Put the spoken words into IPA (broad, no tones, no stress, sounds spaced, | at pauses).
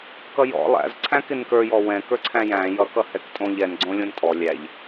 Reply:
k ʌ j ɔ̰ lˠ æ̰ z ǀʰ æ̃ k ɪ n k ə˞ j ɔ w ɛ̃ k ə˞ ǀʰ æ̃ j æ̃ j ʌ k ʌ h ɛ k tʼ õ ʎ ɛ n ɡ͡ǀ õ lʲ õ n tʼ ɔ lʲ æ ʎ